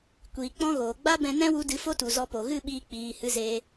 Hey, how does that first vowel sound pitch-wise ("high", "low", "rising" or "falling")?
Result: low